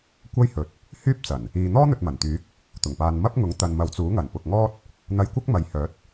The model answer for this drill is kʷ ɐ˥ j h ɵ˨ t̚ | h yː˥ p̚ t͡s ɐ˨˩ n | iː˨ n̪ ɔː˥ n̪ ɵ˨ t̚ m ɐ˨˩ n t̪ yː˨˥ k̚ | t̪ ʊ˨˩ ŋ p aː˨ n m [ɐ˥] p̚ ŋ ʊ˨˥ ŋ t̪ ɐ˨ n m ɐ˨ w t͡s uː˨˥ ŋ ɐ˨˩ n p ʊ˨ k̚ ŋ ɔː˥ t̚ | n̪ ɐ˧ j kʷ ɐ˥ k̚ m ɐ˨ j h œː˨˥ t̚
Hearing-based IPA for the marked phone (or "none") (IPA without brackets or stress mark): ɐ˥